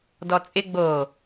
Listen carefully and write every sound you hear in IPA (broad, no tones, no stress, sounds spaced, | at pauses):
d ɔ t͡sʼ ɪ ɡ͡b o